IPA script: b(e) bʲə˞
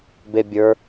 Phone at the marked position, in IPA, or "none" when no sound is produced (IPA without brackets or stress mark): e